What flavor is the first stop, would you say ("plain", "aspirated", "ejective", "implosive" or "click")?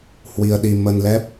implosive